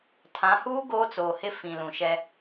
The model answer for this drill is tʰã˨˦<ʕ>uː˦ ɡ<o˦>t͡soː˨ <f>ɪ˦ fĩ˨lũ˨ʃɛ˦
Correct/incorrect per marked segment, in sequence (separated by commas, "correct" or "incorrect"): incorrect, incorrect, incorrect